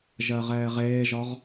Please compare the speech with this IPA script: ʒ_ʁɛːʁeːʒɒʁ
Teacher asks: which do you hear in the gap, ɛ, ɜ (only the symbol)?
ɜ